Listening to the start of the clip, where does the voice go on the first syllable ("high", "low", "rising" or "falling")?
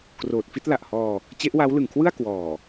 low